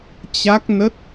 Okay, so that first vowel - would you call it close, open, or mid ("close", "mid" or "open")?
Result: open